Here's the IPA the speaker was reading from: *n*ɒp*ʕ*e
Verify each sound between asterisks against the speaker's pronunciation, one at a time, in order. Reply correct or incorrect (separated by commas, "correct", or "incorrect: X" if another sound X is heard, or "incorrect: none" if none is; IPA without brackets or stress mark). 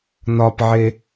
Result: correct, correct